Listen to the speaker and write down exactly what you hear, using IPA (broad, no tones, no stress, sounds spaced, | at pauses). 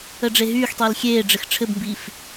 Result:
ə ɖ͡ʐ e ɦ yː x tˤ iː l xʲ eː ɖ͡ʐ ɘ x ʈ͡ʂʰ ɘ b m b iː f